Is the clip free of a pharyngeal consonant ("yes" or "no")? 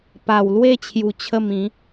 yes